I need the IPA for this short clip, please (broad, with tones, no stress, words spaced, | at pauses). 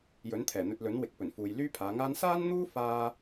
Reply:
jɵ˨˥nt̪ʰɛː˨˩n̪ɵ˧t̚lɵ˨˥n wɪ˨˥k̚pɵ˨˩nfuː˨j lyː˥pʰaː˨˧ŋaː˥n saː˥nn̪uː˥ faː˥